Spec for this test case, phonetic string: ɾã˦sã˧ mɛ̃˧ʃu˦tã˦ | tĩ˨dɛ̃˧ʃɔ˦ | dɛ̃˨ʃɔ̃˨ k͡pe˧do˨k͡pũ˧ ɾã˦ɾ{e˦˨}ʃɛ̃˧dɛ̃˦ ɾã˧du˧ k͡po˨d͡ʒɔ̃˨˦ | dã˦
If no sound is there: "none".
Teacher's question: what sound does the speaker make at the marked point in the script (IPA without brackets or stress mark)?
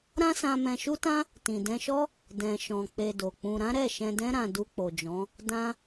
ɛ˦˨